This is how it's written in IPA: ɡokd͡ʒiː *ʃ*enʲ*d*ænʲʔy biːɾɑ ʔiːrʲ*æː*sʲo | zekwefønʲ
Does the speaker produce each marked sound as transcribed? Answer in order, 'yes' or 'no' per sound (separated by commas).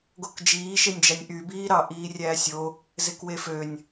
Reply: yes, no, yes